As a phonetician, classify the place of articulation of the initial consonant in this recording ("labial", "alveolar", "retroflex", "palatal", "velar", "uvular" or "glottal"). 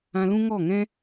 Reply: alveolar